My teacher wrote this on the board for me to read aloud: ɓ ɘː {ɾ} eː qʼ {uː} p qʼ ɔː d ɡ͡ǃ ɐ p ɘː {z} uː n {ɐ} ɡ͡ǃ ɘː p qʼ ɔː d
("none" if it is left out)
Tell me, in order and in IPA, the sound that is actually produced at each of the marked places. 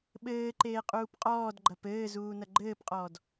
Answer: ǃ, uː, z, ɐ

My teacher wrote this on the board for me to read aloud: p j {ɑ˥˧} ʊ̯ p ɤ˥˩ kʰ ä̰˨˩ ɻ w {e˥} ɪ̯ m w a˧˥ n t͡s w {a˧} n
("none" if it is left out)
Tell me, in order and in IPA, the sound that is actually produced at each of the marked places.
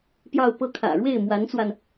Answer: ɑ˥˧, e˥˩, a˧

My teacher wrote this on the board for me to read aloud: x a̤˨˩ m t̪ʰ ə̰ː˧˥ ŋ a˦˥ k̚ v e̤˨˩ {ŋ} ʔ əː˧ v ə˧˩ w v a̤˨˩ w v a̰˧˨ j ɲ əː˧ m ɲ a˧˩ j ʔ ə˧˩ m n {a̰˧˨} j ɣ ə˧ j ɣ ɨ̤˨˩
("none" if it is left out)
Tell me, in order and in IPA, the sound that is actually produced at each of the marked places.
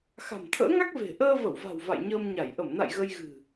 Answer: none, a̰˧˨

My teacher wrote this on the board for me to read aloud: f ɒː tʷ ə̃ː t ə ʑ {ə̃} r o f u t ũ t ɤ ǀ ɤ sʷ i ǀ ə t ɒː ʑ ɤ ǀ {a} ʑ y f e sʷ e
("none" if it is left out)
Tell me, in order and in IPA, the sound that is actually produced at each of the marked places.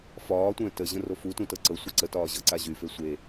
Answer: ə̃, a

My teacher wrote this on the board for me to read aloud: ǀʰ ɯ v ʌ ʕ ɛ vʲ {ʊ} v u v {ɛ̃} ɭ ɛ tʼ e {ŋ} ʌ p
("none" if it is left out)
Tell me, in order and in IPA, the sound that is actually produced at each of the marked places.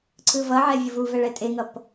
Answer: ɯ, ɛ, ŋ

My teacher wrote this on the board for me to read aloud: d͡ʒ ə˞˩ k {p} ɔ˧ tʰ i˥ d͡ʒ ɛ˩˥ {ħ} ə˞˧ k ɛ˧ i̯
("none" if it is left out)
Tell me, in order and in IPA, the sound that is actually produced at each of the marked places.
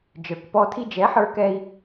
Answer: p, ħ

